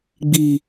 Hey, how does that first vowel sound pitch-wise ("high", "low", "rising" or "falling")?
low